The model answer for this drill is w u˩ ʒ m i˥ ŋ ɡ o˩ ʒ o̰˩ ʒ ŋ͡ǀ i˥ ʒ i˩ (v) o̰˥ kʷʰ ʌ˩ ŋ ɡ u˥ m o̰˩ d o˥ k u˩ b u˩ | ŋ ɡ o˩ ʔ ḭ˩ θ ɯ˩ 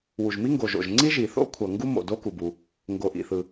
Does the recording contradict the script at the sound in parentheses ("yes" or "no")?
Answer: yes